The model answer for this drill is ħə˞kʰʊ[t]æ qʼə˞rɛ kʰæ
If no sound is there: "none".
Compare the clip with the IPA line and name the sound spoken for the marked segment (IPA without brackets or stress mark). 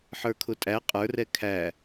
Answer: tʼ